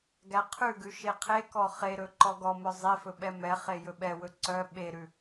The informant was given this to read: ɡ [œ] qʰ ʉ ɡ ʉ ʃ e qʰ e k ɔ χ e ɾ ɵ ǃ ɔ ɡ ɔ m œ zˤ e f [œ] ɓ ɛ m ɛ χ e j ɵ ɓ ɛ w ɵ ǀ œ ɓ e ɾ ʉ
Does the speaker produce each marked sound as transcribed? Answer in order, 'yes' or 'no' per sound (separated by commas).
no, no